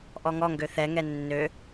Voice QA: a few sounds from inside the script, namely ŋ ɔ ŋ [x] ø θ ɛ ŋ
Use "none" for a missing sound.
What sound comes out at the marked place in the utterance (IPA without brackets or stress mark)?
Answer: ɡ